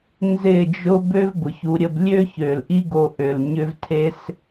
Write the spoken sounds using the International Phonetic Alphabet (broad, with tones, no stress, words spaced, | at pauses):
nzɪ˦˨d͡ʒʊ˦ bø˦vbʊ˨çu˨˦ ɾʲə˧blʲø˦çø˨l ʔi˦ɡo˧ʔø˨l ɲʏ˦vtʰe˦s